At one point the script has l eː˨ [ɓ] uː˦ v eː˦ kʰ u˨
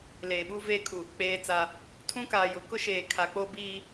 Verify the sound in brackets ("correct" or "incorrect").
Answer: correct